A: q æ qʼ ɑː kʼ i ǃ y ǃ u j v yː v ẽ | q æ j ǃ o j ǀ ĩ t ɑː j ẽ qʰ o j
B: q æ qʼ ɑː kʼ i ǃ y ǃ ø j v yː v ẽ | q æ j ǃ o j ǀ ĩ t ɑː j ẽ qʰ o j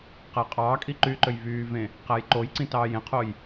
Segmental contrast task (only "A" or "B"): B